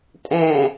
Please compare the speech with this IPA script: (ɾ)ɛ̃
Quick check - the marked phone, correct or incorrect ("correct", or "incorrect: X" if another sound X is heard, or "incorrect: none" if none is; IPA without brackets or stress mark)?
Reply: incorrect: tʼ